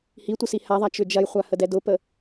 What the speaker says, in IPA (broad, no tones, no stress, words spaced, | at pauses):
hitʷə sihaðˤa t͡ʃʏd͡ʒɐjχʷa hədɛdʊpə